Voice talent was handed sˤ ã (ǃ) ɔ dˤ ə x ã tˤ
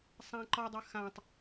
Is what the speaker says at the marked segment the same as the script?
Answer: yes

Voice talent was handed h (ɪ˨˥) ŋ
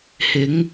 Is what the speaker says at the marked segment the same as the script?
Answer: yes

